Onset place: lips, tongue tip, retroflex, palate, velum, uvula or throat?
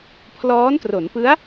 lips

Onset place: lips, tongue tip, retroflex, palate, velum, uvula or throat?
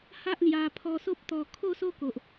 throat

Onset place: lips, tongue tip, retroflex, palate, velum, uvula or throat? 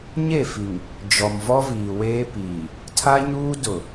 palate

